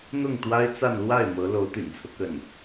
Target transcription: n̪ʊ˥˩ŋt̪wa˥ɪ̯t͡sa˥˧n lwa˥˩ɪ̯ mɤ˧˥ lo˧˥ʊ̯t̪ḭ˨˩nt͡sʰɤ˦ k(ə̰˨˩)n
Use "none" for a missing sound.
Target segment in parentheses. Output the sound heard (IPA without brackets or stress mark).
ə˥˩